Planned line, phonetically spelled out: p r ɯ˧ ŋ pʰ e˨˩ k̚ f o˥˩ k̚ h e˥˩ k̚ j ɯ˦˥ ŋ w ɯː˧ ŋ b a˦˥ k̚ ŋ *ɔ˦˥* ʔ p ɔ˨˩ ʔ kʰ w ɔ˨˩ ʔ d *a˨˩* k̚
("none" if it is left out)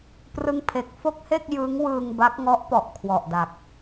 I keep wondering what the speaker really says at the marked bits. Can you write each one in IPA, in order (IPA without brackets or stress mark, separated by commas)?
ɔ˦˥, a˨˩